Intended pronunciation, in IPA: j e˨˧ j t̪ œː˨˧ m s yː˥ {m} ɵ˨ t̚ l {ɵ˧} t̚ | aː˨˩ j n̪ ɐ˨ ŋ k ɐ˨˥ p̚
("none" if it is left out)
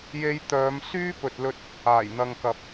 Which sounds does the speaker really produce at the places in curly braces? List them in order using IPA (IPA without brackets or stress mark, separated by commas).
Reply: p, ɵ˧